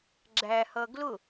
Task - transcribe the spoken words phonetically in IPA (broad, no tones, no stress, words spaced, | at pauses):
ɡ͡ǁæhʌ ɡlʊ